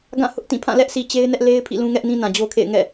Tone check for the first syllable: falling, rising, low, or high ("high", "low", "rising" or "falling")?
falling